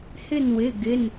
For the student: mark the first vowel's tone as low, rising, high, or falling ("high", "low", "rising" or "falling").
falling